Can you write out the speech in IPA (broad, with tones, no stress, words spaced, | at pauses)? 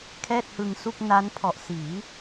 kʰɛː˥˩t̚hɯ˧ŋsu˥˩k̚ na˦˥npʰɔ˨˩ʔ siː˩˦